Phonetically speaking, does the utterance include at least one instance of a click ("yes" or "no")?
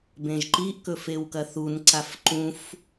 yes